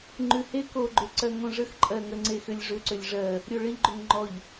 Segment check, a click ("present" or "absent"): present